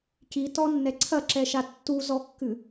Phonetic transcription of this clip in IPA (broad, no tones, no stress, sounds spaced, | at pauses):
c i t ɔ nː ɛ ǀʰ ɐ ǁ ɛ ʃ a tː u z ɔ kː ɨ